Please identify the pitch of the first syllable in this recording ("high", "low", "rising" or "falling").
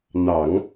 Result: low